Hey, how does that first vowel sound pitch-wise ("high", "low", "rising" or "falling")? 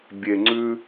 low